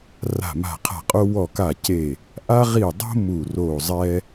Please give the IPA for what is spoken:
r a̤˧˩ m a̤˧˩ qʰ a̤˧˩ qʼ o˦ w ɔ˧˩ k a˧˩ c e˧˩ | ʔ a˦ ʁ i˧˩ dˤ o̤˦ m u˧˩ r o˧˩ zˤ ɛ˦

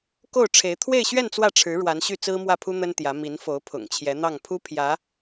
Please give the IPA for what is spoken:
k o˥˩ ʊ̯ ʈ͡ʂʰ e˧˥ ɪ̯ t̪ʰ w e˥˧ ɪ̯ ɕ ɥ ɛ˥˧ n t͡s w ä˥˩ ʈ͡ʂʰ ɻ̩˧˥ ɻ w a˧˥ n ɕ y˥˩ t͡s ɹ̩˥ m w ä˥˩ pʰ u˥ n̪ ə˥ n t̪ j ä˧˥ m i˧˥ n f o˧˥ ʊ̯ pʰ ʊ̰˨˩ ŋ t͡ɕʰ j ɛ˧˥ n̪ ɑ˥˩ ŋ pʰ u˥ pʰ j ä˧˥

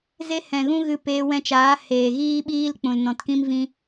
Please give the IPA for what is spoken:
z e˦ h ɛ̃˨ ɣ ũ˦ ɣ ɨ˧ p eː˧ w ɛ̃˧ t͡ʃ aː˨˦ h eː˨ ɣ iː˦ ɓ iː˦ l k͡p ũ˨ l n ɔ̃˨ t k ĩ˦ m v ĩ˧

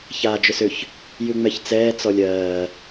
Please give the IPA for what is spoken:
ç aː d͡ʒ ʏ s ʏ ç | j ʉ ŋ͡m ɛ ç t͡s ɛː t͡s ɔ lʲ ɜː

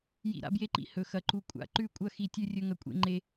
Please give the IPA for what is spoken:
j ḭ˥˧ ɾ a̰˥ b j e˥ ǃ ḭ˥ h ɵ˥˧ x ɐ˥˧ ǃ u˥ kʷʼ a̰˥˧ ǃ ʉ˥˧ kʷʼ ɐ˥˧ x i˥˧ tʲ ʉ˥ rʲ ɵ˥ ŋ ɐ˥ kʷʼ ḛ˥ ŋ͡ǃ e˥

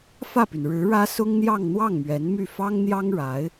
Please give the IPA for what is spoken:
f ä˥˩ p y˩ n ɻ ɻ̩˧˥ ɻ ä˥ s ʊ˥ ŋ n̪ j ɑ˥˧ ŋ n̪ w ɑ˥˩ ŋ m ɥ ɛ˧˥ n m y˥˩ f ɑ˥ ŋ n̪ j ɑ˥ ŋ ɻ a˧˥ ɪ̯

